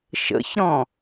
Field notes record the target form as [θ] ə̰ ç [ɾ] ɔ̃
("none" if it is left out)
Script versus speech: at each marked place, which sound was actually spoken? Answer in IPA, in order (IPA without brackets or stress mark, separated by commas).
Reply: ʃ, ɾ